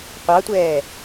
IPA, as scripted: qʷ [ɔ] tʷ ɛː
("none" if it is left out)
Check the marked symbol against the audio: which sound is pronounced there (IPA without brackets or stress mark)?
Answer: ɑ